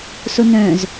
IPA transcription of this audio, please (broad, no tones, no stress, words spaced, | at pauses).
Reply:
sonœ̃z